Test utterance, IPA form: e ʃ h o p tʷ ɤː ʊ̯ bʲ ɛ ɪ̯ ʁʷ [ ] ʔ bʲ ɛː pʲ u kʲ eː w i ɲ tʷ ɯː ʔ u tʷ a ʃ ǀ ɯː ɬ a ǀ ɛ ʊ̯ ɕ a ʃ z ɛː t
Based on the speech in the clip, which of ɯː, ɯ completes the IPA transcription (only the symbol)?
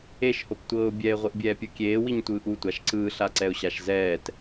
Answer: ɯ